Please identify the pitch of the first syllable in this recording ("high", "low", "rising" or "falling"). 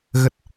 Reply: low